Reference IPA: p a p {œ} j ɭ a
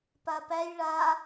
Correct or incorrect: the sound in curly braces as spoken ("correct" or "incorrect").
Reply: incorrect